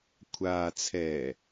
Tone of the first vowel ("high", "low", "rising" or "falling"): low